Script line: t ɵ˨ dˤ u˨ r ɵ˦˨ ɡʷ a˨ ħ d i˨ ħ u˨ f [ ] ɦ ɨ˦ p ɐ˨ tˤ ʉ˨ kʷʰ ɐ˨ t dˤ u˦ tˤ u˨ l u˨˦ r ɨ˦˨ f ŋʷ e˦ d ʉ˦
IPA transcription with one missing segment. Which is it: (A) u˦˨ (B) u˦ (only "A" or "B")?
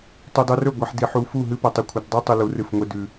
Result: A